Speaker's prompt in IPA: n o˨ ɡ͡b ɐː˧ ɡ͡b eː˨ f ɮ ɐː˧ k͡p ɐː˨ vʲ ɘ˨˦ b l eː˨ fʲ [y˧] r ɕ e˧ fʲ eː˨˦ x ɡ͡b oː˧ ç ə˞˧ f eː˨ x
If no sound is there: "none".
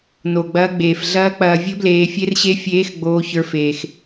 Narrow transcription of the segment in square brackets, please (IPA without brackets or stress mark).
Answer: e˧